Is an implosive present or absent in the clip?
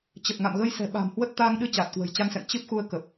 present